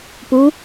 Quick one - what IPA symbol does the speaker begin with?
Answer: p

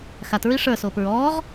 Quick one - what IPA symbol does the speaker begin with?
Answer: x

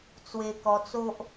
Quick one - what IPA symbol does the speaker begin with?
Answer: t͡s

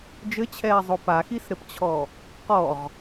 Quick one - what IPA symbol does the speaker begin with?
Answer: d͡ʒ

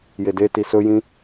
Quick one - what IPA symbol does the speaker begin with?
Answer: j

